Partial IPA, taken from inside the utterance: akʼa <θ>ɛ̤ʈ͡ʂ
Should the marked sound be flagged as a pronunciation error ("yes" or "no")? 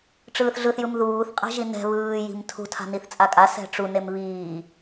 yes